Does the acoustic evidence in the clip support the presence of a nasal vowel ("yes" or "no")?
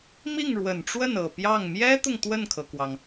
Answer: no